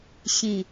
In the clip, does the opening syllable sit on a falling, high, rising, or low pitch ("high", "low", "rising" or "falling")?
low